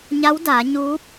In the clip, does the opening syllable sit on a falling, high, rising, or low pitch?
rising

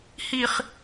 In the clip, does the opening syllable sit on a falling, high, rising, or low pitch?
high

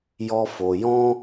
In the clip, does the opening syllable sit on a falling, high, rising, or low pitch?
high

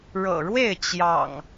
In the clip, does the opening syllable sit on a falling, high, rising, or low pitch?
low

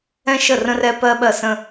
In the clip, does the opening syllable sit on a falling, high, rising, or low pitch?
high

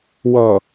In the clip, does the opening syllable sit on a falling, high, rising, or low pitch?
low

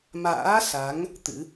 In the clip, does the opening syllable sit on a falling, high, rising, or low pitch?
rising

